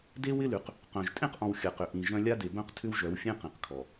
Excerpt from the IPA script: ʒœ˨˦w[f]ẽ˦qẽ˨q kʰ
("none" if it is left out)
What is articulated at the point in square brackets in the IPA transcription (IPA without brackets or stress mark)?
fʲ